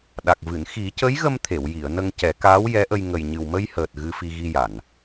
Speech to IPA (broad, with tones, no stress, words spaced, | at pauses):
ɗa˨˩k̚vɨ˨˩˨n xi˨˩˦cə˧˥jɣə˧m t̪ʰe˨˩˨wji˨˩˨ə̯ nə˧ŋcɛ˨˩˦kaː˧˥w jɛ˧˥ʔə˧j ŋə˨˩jɲɨ˨˩wmə˧jhəː˨˩t̚ ɣɨ˧fi˧ɣi˧ ja˨˩˨n